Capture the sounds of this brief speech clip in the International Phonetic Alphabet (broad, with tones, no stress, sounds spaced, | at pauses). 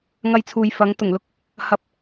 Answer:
ŋ ɐ˧ j t͡sʰ uː˨ j f ɐ˨˥ ŋ t̪ ʊ˨˩ ŋ l ʊ˥ k̚ | h ɐ˧ p̚